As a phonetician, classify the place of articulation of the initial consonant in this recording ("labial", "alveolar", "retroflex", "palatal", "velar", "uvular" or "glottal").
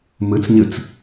labial